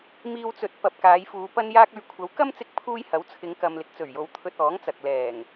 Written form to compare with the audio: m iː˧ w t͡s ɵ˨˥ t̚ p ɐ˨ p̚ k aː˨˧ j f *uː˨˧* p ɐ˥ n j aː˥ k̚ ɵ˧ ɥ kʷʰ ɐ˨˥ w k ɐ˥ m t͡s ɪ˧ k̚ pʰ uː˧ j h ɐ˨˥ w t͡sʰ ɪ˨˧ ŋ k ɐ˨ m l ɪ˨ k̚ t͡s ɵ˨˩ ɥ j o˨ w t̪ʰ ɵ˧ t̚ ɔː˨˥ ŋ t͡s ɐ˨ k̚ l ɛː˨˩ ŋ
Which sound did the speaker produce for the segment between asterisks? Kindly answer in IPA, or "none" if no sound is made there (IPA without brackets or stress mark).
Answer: uː˨˧